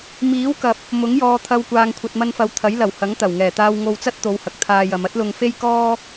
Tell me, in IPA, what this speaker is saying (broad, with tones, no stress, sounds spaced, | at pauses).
m iː˨˥ w k ɐ˨ p̚ | m ʊ˨˥ ŋ j ɔː˧ t̪ʰ ɐ˧ w kʷ aː˨ ŋ kʷʰ ɐ˨ t̚ m ɐ˧ n f ɐ˨ w t̪ʰ ɐ˨˥ j l ɐ˨˩ w h ɐ˨˥ ŋ t̪ ɐ˨˩ w ŋ ɛː˨˩ t̪ aː˧ w ŋ o˧ w t͡s ɐ˥ t̚ t̪ o˨˧ w h ɐ˨ k̚ t̪ʰ aː˧ j ɐ˨˧ m ɐ˥ t̚ l ʊ˧ ŋ f e˥ j k ɔː˥